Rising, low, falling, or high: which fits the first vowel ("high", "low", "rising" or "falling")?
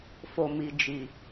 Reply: low